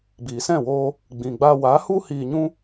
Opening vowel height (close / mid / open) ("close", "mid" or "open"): close